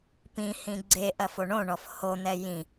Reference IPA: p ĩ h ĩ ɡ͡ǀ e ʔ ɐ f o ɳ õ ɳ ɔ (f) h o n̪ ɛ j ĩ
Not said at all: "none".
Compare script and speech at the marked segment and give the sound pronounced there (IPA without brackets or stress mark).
f